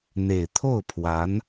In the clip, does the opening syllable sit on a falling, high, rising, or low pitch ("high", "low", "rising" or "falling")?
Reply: low